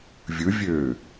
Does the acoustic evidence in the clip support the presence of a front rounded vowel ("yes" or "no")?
yes